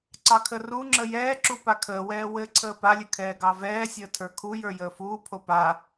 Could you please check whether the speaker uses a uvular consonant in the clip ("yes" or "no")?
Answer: no